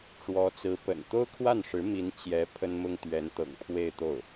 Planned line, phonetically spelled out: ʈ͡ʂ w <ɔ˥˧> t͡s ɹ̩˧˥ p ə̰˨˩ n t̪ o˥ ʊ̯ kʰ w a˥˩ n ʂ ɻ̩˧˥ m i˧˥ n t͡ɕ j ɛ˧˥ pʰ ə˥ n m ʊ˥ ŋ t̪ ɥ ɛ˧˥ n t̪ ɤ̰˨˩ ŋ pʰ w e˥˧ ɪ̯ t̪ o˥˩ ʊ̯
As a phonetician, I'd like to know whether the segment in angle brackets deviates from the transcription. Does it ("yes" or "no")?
yes